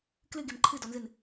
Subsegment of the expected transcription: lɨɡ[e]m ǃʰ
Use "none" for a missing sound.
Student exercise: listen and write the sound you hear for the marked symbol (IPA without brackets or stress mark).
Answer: e